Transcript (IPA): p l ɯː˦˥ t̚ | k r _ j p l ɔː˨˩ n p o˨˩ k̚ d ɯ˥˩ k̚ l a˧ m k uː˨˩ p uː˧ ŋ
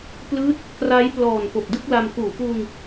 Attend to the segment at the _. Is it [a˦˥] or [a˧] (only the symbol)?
a˦˥